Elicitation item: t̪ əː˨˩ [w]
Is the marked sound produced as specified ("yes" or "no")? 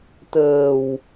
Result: yes